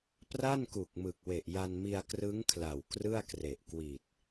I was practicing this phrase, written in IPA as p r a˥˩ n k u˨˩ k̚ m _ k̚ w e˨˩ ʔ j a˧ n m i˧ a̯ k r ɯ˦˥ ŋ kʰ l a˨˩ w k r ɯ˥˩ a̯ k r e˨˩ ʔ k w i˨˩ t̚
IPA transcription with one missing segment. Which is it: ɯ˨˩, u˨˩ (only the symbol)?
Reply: ɯ˨˩